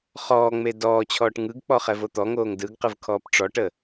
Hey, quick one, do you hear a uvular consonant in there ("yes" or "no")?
yes